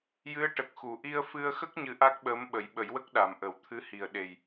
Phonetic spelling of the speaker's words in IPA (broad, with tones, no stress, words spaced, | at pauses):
jɨ˧˥ə̯ʈə˨˩k̚xu˨˩˨ ʔi˧ə̯fɨ˧ə̯xə˦˥k̚ ɲɨ˧˥ʔa˦˥k̚ɓəː˧˥m ɓə˨˩˦jɓə˨˩˦jwə˦˥k̚ ɗa˨˩mʔə˨˩˦w t̪ʰɨ˧˥hi˨˩ə̯ɗe˨˩j